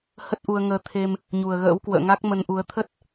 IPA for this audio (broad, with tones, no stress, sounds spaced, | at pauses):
h ə˦˥ t̚ ʔ u˧ ə̯ ŋ əː˧ t̪ʰ e˧ m | ɲ u˨˩ ə̯ ɣ ə̰ː˧˥ w k w ə̰ː˧˨ ŋ a˦˥ k̚ m ə˧ n ʔ u˨˦ ə̯ t̪ʰ ə˦˥ t̚